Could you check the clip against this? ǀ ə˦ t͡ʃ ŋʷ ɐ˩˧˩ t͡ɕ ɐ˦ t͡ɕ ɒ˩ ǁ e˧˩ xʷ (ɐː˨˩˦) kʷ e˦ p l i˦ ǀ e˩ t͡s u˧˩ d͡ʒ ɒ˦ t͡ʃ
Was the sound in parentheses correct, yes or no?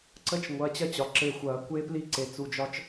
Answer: yes